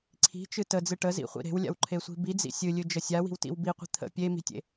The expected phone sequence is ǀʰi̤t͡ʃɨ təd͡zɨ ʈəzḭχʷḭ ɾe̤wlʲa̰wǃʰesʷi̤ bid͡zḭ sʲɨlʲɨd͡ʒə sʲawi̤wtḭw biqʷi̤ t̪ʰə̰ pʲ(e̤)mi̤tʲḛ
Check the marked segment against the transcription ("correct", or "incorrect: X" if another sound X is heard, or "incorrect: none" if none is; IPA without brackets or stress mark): incorrect: e